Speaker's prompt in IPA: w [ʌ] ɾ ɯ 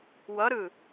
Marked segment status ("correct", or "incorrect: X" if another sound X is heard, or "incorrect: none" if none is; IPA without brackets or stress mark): correct